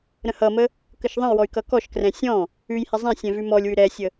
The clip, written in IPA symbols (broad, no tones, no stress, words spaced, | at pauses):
ɾə̃hʌmə | kəʃðˤə̃jwɔy̯ kʌkɔʃkrɛ̃ sʲɔ̃ | ʉjhɛ zˤɛ̃sʲɛ̃ vʉmɔlʲwʉ ɾɛsʲə